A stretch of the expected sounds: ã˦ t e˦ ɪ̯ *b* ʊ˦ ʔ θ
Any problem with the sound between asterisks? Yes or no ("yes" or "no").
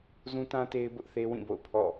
no